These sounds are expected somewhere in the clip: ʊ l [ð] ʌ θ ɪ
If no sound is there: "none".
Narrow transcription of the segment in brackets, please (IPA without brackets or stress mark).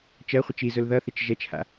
ð